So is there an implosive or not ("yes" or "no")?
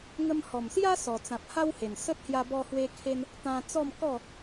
no